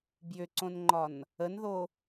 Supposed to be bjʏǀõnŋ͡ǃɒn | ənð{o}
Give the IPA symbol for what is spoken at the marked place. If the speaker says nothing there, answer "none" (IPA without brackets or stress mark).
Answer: o